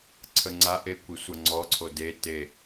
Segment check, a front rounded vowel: absent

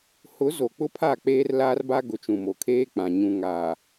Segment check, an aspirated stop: present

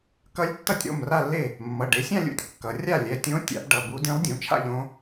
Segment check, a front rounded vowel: absent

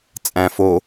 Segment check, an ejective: present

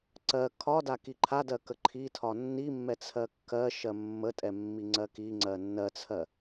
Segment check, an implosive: absent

